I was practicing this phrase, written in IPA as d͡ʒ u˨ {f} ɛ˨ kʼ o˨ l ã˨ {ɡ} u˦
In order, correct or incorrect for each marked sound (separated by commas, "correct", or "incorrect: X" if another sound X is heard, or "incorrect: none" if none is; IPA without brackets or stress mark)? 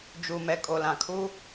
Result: incorrect: m, incorrect: kʰ